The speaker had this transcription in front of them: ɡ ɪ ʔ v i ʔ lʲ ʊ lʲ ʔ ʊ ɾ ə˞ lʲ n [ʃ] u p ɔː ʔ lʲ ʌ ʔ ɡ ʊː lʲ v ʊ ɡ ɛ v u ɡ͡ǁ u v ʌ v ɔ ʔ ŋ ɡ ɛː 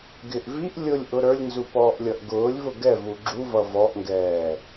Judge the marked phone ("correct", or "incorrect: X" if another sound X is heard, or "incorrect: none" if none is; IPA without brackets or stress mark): incorrect: z